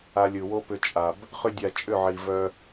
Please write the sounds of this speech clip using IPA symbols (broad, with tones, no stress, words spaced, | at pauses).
a˧lʲɯ˨wo˦ pʏ˧t͡ʃʼa˨b | χʏ˦dʲa˧t͡ʃʼʏ˦˨ʕi˨ vœ˧